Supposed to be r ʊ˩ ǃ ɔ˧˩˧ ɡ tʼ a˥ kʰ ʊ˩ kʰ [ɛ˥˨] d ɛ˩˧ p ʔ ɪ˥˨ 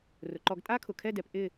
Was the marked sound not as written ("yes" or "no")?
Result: no